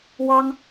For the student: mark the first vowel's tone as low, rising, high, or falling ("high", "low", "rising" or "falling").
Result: high